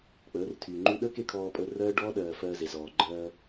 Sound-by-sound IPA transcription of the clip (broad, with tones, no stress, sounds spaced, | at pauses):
k͡p əː˨˦ r tʰ yː˨ ŋ͡ǃ ʉ˦ ɗ əː˦ k e˧ kʰ ɔː˧ pʼ əː˧ r ɜː˦ ɖ ɔː˦ ɗ ɜː˨ f ɜː˧ z e˨ z ɔː˨ ɡ͡ǃ ɜː˧